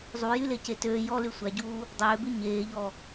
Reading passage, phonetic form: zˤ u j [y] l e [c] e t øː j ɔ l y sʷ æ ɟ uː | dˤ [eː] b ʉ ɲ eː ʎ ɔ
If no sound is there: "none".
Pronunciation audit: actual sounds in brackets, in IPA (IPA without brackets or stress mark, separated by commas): y, c, øː